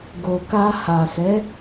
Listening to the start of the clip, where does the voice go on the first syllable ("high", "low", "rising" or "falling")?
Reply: low